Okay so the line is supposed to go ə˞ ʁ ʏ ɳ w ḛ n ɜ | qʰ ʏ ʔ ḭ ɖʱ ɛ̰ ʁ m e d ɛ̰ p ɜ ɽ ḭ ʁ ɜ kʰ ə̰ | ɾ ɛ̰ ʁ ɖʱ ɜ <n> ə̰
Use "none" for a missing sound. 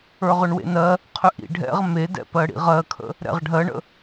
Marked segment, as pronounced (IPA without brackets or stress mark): ɳ